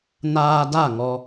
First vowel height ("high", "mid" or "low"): low